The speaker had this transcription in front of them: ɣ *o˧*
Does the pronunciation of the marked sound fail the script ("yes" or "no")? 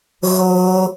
no